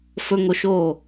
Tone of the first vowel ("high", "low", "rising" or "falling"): low